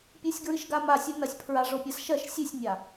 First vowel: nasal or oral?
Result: oral